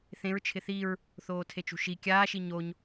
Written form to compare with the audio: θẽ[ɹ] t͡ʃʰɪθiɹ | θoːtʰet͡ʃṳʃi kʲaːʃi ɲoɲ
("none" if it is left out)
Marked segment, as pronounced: ɹ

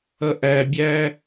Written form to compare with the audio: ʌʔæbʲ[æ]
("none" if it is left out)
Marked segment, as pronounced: æ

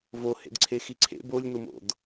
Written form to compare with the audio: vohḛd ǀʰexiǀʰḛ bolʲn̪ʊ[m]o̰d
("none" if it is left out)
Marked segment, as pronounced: m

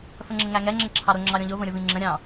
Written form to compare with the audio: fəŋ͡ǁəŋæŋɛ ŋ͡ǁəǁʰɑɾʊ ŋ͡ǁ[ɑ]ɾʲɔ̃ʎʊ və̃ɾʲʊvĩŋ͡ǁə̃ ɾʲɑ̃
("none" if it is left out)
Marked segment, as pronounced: ɑ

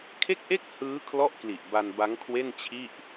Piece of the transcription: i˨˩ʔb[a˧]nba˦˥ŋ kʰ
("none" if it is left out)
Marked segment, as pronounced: a˧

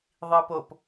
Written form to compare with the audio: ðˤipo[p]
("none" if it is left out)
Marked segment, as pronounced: p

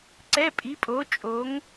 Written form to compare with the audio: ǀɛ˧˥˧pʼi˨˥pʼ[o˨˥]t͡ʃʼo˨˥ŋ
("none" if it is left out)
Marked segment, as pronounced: o˨˥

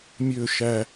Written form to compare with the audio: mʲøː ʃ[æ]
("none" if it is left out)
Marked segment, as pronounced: æ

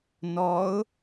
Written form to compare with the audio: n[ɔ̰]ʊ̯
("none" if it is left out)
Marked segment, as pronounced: ɔ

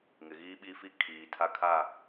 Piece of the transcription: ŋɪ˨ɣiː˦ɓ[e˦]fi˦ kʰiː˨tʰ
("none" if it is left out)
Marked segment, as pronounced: i˦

